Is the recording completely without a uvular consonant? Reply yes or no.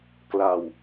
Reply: yes